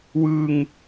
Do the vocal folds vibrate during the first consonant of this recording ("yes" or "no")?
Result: yes